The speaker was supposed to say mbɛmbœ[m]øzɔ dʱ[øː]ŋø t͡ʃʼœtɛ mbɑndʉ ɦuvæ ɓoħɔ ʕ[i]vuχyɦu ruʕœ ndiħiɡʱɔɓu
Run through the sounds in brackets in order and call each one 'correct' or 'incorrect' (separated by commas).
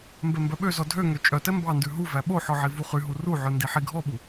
incorrect, incorrect, correct